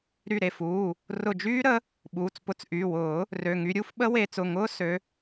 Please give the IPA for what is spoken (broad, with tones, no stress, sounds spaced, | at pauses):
ɾ y˧˩ ɾ e˩˧˩ f uː˩˧˩ | r ʊ˧˩ d͡ʒ yː˦˥ ɾ ə˨˦ | ɓ uː˩˧˩ t͡s p ʊ˨˦ t͡s ʔ y˩˧˩ w ʊː˨˩˦ | r ø˩˧˩ ŋ y˨˦ ɾʲ u˦˥ f ɓ ə˦˥ w e˨˦ t͡s ʊ˩˧˩ ŋ ʊː˦˥ s ø˨˦